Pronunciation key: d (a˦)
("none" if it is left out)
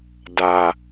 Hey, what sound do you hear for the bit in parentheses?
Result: a˨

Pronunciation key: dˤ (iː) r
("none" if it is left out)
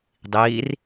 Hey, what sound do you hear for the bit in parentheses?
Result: iː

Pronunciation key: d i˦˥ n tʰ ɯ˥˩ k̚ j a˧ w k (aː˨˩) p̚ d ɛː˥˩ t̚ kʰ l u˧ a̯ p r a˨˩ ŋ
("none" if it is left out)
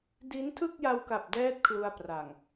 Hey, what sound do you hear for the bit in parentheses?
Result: a˨˩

